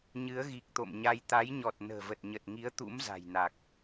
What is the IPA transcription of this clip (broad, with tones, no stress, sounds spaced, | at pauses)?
ɲ ɨ˨˦ ə̯ ɣ i˨˩ k̚ t̪ o̰˧˨ m ɲ a˧ j t̪ a˨˦ j ɲ ɔ˨˩ t̚ n ə̤ː˨˩ v ə˨˩ t̚ ɲ ə˨˩ t̚ ŋ i˨˦ ə̯ t̪ ṵ˧˥ m z a̤˨˩ j n a˨˩ k̚